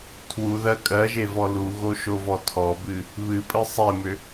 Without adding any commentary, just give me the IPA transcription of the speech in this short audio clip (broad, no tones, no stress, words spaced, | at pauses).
tʰwuðɜ kʼɜʒevɔ luɣoʃovɔ tʰɔbɨ | βɨpʼɨ sˤemʏ